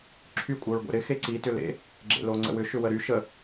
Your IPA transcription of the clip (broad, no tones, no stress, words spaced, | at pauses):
ǁʰy kʷʼœɹɡʷḛɾɪ xeǀi tʏlḛ | ɡ͡ǁḛloŋ͡ǀə̰wʏ ʃʏwəɾy ʃə